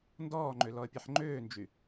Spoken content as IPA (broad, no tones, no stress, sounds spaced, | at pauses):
n d ɔː ŋ͡ǃ ø l ɔ ə̯ pʲ ɛ ħ ŋ͡ǃ øː n d͡ʒ y